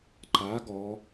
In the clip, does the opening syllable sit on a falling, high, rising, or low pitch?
rising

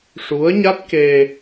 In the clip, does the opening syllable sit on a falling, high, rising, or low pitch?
rising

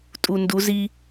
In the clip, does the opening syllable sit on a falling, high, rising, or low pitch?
low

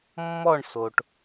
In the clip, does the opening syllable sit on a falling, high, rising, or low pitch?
falling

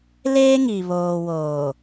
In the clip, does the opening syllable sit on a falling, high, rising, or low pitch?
high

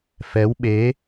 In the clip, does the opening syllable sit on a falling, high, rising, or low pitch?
rising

